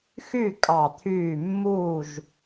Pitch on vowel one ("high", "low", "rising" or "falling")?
falling